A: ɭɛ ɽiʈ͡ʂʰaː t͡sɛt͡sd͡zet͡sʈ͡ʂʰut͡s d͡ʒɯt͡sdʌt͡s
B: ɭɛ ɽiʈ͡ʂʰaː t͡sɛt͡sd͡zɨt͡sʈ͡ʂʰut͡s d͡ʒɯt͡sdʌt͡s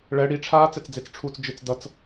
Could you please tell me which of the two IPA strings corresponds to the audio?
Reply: A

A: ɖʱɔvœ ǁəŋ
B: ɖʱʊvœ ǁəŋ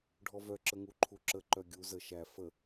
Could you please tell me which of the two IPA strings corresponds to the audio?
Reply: A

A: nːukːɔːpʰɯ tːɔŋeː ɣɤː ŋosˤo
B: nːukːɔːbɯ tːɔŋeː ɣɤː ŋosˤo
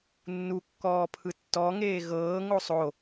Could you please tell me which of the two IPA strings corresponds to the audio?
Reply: A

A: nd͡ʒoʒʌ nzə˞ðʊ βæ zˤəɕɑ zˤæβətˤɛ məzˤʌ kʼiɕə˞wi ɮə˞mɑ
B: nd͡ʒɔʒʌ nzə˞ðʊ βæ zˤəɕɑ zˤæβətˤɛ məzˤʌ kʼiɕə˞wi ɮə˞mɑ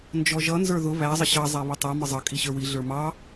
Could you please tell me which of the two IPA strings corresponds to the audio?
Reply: B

